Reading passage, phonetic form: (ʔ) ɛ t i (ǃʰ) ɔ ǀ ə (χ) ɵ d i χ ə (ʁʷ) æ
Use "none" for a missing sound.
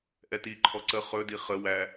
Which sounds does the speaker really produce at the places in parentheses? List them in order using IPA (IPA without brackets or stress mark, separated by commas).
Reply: ʔ, ǃʰ, χ, w